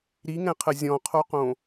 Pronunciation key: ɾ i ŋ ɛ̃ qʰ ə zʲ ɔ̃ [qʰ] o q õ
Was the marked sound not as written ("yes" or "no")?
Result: no